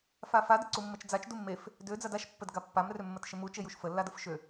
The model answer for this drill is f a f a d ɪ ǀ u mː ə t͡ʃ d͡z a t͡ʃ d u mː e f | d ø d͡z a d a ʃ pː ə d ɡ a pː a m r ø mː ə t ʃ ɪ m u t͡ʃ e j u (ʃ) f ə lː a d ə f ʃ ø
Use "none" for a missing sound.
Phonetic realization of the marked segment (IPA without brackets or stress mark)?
ʃ